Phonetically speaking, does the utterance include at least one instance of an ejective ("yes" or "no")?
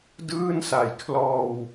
no